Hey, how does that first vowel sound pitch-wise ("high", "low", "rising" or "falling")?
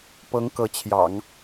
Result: rising